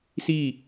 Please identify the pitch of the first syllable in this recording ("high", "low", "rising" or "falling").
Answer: falling